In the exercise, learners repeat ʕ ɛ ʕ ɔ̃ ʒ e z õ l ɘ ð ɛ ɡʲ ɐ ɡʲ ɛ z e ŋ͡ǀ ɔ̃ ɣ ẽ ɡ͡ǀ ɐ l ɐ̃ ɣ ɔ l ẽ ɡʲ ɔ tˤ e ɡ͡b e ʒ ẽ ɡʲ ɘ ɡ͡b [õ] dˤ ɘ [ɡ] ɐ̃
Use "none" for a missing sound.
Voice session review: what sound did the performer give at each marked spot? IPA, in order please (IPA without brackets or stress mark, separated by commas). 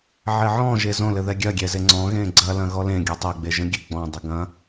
ɔ̃, ɡ